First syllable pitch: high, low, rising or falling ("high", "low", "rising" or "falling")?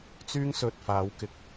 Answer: high